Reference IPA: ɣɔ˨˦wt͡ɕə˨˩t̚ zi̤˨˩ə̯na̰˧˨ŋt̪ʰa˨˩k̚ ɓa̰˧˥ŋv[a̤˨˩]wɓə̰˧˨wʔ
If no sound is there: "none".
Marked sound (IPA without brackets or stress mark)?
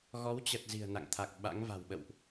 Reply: a̤˨˩